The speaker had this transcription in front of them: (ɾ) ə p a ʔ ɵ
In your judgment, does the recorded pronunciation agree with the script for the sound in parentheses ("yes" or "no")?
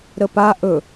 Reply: yes